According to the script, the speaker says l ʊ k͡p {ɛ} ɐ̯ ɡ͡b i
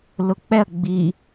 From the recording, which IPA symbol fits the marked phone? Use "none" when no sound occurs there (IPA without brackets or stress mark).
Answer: ɛ